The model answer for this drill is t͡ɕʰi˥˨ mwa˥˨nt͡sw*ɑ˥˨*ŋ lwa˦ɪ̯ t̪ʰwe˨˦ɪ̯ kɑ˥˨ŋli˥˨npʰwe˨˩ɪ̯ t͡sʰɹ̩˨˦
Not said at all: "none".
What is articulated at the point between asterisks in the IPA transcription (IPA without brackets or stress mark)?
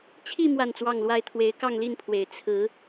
ɑ˥˨